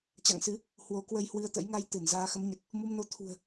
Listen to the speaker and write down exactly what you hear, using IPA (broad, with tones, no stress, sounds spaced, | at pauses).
t͡ɕ a̰˧˨ ŋ s ɨ˨˦ | h w o˨˦ k w ə˧ j h w ɨ˧ ə̯ t̪ ə̰˧˥ j ŋ a˧ j t̪ ɨ˧˩ n z aː˧ x ə˨˦ m ɲ ə˨˩ t̚ | m u˧ m n o˧ t̪ʰ ṳ˨˩ ə̯